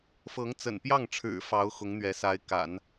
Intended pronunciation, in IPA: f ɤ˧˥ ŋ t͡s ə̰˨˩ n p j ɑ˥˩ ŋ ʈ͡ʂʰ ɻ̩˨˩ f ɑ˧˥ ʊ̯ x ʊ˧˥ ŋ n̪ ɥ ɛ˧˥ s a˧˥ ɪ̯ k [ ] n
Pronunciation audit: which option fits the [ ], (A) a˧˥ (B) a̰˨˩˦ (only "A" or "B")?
B